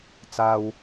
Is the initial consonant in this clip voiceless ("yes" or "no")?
yes